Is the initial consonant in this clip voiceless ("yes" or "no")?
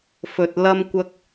yes